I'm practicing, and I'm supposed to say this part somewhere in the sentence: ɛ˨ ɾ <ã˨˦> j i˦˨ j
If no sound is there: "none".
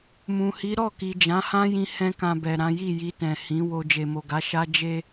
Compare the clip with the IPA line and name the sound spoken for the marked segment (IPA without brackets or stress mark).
ã˨˦